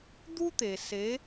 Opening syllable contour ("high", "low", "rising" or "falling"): high